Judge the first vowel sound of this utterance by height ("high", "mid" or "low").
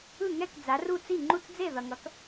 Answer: high